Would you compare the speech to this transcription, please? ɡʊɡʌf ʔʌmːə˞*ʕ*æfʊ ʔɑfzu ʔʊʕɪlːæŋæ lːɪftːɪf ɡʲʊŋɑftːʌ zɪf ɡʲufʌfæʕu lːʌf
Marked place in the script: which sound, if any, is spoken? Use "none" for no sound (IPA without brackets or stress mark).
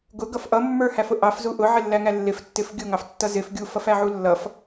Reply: h